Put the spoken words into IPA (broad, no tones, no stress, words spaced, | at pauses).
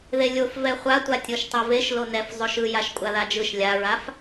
ðelʲof vɛχʷatʷa tʲoʃtˤeveʃ lonɛf zˤoʃɯjaʃ kʷʼaðad͡ʒɯʃ lʲaɹaf